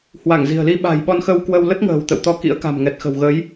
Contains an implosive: yes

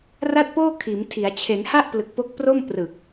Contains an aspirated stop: yes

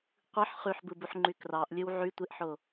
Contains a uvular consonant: yes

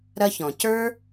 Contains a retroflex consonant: no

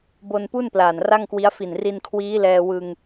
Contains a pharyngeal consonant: no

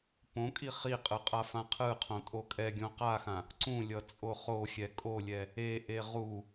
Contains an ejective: yes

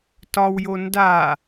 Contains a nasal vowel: no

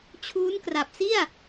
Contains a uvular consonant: no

